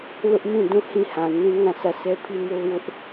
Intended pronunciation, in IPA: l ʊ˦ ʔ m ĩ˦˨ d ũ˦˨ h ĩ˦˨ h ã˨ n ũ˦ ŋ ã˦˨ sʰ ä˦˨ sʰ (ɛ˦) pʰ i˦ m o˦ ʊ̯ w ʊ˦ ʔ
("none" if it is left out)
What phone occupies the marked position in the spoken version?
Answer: ɛ˦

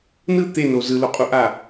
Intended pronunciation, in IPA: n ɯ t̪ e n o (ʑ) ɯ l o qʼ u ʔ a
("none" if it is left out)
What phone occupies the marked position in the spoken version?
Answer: z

